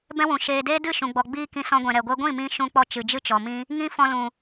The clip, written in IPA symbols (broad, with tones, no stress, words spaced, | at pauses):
bɛ̃˦wũ˨ ʃeː˨ deː˦dɨ˦˨ʃũ˨ɡ͡bɔ˨ ɡ͡biː˦kĩ˧sɔ̃˧ɡʷɛ̃˨ ɾɛ˨ɡʷɛ˦ ɡʷĩ˦˨mĩ˧ ʃũ˧k͡pɔ˧ t͡ʃɨ˨d͡ʒɨ˦t͡ʃɔ˨mĩ˦ | ŋĩ˧ fɔ̃˧lũ˨